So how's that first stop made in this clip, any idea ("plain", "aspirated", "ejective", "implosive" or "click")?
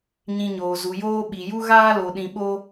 implosive